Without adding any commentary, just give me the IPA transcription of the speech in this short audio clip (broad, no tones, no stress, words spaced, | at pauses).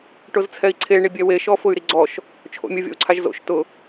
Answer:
ʈʊzt͡sʰɛi̯ǀʰe ɳibʲɛwe ʃɔfʊy̯ɾiɡ͡ǀɔʃ | t͡ʃʰo̰mʲʊ vʲɔ̰u̯ǀʰaʒzo̰ʃ tʊ